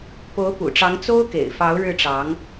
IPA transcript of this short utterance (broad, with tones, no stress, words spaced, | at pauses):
po˧˥ʊ̯pṵ˨˩ʈ͡ʂɑ˧˥ŋ t͡so˥ʊ̯kḛ˨˩ɪ̯fɑ˧˥ʊ̯ ɻɻ̩˥˩ʈ͡ʂɑ˧˥ŋ